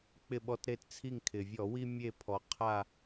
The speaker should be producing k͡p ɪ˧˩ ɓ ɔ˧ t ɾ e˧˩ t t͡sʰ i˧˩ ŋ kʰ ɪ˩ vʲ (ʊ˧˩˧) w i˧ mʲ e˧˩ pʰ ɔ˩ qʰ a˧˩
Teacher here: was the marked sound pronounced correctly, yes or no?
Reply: no